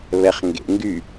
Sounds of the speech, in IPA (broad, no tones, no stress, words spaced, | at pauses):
βɛχŋɡḛŋɡy